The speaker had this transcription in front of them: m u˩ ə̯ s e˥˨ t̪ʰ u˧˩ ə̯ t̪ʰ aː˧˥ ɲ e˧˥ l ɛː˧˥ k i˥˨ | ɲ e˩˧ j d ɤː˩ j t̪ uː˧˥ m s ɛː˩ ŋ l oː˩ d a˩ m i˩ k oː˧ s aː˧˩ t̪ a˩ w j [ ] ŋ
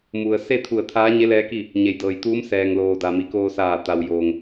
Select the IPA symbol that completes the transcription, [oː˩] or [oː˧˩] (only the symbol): oː˩